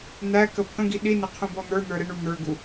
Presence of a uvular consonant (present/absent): present